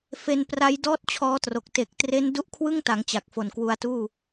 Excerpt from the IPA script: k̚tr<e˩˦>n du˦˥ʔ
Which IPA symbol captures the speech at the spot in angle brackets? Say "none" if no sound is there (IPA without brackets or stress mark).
e˦˥